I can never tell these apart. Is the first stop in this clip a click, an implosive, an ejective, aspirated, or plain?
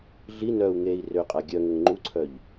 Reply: ejective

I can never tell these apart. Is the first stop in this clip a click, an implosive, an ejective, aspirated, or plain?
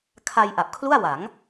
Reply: aspirated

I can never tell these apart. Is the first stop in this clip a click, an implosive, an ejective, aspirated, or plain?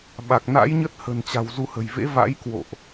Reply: implosive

